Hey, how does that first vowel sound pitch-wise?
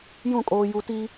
falling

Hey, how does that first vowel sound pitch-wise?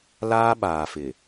high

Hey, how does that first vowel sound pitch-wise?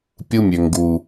high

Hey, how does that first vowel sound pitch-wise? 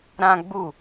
high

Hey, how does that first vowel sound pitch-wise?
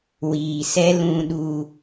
low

